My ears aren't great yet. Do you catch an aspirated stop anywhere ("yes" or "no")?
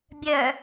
no